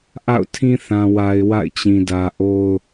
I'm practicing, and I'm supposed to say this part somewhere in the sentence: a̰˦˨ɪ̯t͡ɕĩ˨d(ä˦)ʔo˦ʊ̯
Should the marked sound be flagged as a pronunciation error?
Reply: yes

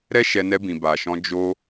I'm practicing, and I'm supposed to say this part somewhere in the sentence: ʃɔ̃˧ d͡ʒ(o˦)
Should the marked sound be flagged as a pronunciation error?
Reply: no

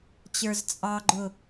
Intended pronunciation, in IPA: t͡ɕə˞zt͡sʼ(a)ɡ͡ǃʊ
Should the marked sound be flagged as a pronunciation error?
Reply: yes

